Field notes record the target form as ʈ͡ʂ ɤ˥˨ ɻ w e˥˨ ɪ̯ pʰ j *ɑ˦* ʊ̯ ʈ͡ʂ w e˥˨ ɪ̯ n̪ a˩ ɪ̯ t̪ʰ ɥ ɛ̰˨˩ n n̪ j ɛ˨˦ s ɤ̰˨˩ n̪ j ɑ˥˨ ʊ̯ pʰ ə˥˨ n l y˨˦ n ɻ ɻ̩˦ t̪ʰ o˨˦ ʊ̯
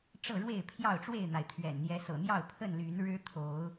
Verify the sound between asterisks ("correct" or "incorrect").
incorrect